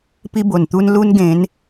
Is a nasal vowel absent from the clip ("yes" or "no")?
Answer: no